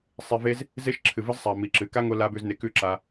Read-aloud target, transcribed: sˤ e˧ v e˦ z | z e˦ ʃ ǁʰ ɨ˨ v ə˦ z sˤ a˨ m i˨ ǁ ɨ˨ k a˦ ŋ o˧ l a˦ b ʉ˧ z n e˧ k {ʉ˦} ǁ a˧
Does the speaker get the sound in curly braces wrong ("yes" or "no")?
no